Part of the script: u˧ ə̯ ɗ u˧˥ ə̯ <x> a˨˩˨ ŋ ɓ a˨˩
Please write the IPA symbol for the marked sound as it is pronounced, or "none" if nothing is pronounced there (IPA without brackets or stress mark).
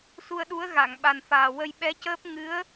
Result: ɣ